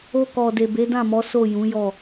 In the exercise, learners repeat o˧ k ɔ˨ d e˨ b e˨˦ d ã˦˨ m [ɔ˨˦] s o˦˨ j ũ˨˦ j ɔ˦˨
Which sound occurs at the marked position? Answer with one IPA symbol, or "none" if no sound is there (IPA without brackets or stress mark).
ɔ˨˦